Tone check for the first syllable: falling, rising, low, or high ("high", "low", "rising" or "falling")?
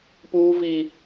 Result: high